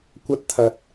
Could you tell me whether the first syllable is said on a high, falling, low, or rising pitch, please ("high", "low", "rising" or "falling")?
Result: high